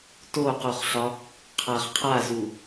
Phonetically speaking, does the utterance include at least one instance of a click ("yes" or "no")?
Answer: no